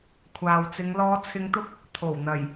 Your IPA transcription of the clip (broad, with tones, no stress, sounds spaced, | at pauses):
kʷʰ aː˨ w t͡s ɪ˨˧ ŋ l ɔː˨˧ t͡sʰ ɪ˨˧ ŋ t̪ ʊ˧ k̚ | t̪ʰ o˨˩ w n̪ ɐ˨˩ j